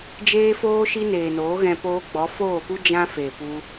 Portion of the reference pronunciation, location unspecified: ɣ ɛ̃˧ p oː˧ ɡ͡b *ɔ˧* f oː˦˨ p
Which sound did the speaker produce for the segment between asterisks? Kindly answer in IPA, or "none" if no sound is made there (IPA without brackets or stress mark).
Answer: ɔ˨˦